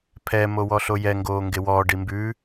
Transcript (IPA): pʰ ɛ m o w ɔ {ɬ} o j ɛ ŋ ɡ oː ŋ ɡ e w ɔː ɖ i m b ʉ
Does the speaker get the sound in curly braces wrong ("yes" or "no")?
no